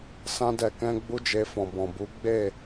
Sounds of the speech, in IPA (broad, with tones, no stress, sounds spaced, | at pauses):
s ã˧ d ɛ˨ k ɛ̃˧ ɡ͡b u˦ d͡ʒ e˧ f ɔ̃˨ b ɔ̃˨ b u˨˦ ɡ͡b e˦˨